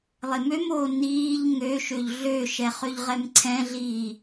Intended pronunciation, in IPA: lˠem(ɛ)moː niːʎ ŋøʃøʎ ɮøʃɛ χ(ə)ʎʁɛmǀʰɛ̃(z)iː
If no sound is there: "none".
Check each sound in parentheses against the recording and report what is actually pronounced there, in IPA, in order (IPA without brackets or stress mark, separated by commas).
ø, ø, ɮ